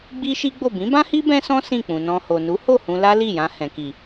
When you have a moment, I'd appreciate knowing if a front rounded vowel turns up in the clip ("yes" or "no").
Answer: no